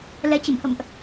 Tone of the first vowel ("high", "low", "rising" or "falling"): rising